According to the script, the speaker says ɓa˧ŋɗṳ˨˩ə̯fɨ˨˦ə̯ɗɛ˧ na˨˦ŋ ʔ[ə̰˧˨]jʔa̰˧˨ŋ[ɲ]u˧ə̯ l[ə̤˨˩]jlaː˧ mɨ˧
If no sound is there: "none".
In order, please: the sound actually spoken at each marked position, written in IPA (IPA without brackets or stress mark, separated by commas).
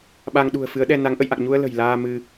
ə̰˧˨, ɲ, ə̤˨˩